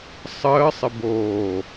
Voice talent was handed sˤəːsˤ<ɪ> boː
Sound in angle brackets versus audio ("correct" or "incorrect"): correct